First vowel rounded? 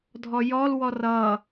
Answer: yes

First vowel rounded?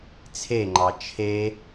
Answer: no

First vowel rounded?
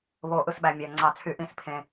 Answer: yes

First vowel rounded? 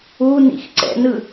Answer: yes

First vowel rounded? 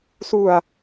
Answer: yes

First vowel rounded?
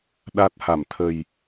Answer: no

